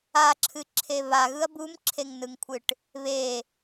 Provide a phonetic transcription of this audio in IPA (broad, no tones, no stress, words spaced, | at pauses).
aǁʰɨǁʰe βaɣɯɐ̯ bumǁʰeŋnɯŋkʷʰɨʈ | βe